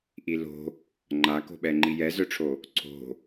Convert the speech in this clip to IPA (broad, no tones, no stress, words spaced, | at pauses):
ʔilo̤ | ŋ͡ǃako̤ɓɛ ŋ͡ǃijɛzœʈ͡ʂʰo | ǀʰo̤